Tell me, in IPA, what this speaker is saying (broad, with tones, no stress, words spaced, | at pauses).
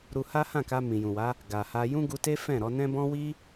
ɾu˧ ha˦hã˦˨ka˧ mĩ˨jũ˨wa˨˦ | ɡa˨ha˧ jũ˦ɡu˧te˦ fɛ̃˦˨ɾɔ˧nɛ̃˦ bɔ̃˦wi˦